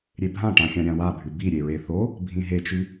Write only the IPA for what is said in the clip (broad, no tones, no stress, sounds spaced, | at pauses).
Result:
ɾʲ e bʱ ã ʈ ã xʲ ã ɾʲ ã w a bʱ ʉ b i ɾʲ e ɹ e θ o | bʱ ĩ ɦ e t͡ʃ ʉ